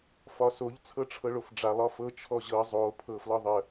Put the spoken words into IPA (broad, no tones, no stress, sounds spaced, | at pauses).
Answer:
f ɒ s o ʎ t͡sʰ ɤ ʈ͡ʂʰ ɤ ɭ o f ɖ͡ʐ a lˠ ɒ f ɤ t͡ʃʰ ɔ ʑ ɤ zˤ o pʰ ɤ f l ɒ ðˤ ə